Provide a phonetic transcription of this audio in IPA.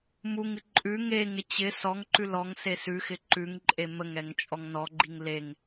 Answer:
m u ŋ ɨ ǃʼ ʉ ŋ e ŋ ɪ t͡ɕ ɪ s ɔ ŋ ǃ ʉ l ɔ ŋ s e s ʉ x ɪ ǃ ʉ ŋ ǃʼ e m ə ŋ ɛ ŋ t͡ʃʼ ɔ ŋ n ɔ ɡ͡ǃ i ŋ l e ŋ

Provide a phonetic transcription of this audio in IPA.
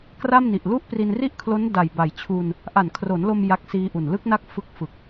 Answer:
k r a˥˩ m n i˨˩ ʔ l u˥˩ ʔ p r i˧ n r i˥˩ ʔ kʰ l o˦˥ n d a˨˩ j b a˨˩ j t͡ɕʰ u˧ n | ʔ a˨˩ n kʰ r o˩˦ n l o˧ m j a˦˥ k̚ s iː˦˥ ʔ u˨˩ n l ɯ˦˥ k̚ n a˦˥ k̚ f ɯ˦˥ k̚ f ɯ˨˩ k̚

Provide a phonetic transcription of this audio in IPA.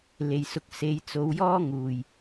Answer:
l e˨ j s ʊ˨˥ k̚ s e˨˧ j t͡s o˨˧ w j ɔː˥ ŋ uː˨ j

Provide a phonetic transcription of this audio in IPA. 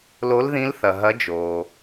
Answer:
l o˨˦ l ð ĩ˨˦ l θ ɐ˩ ɦ ɐ˨˦ d͡ʒ oː˩

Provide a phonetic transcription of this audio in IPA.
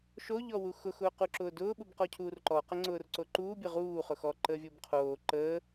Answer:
ʃ o ʎ ɔ w u x ʊ x ʊː q u ǁ ʊː d ʊː ɓ u b q ɔ cʰ uː r ǃ ɔ q ə ŋ͡ǀ ʊː r ǀ o ǃ uː bʲ ə ʁ uː χ ʊ x ɔ ǃ əː vʲ ʊː b qʰ oː ǃ əː

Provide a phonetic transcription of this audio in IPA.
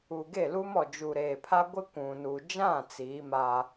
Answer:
uː˨ ɡ e˦˨ l u˦ m ɔ˨ d͡ʒ u˨ ɾ eː˨ pʰ a˦ ɡʷ ɪ˦ kʷ ũ˨ n u˨ d͡ʒ ã˦˨ t͡s iː˨˦ m a˦

